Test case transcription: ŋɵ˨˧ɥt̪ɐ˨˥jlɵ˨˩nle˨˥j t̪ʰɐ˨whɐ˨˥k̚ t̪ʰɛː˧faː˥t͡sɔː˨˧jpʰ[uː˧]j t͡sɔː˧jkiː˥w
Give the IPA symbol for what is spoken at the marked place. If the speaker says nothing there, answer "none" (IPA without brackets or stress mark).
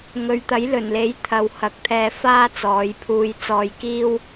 uː˧